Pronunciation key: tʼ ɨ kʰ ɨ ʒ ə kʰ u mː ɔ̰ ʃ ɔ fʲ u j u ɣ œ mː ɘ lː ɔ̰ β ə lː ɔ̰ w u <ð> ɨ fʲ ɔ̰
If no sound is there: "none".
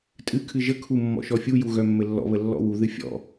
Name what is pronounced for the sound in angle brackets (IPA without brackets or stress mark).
ð